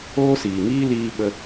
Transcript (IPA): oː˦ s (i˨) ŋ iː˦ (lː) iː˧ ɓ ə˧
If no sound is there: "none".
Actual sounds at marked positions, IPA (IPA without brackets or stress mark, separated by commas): iː˨, l